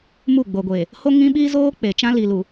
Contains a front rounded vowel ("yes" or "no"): no